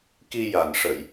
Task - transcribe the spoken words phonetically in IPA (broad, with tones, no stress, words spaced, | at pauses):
ki˧ja˨˩n ʂə˨˩˨j